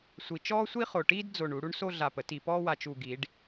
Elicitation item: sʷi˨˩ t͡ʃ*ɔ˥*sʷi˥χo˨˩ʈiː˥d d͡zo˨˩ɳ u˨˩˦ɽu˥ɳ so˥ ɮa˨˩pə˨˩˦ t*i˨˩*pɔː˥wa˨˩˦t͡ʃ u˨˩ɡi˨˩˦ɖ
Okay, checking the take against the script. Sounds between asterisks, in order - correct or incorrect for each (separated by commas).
incorrect, correct